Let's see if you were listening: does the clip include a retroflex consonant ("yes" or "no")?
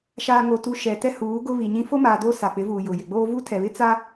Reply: no